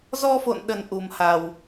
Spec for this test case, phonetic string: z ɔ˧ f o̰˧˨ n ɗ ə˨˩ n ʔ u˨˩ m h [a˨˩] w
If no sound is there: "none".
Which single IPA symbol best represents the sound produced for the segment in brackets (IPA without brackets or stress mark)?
a˨˩